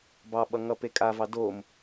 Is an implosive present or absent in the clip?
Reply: present